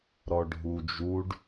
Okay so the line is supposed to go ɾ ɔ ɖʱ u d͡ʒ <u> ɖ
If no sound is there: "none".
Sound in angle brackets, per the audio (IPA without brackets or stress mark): u